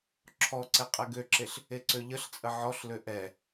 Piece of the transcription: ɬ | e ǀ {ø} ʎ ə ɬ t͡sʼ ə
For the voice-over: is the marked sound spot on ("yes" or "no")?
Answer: yes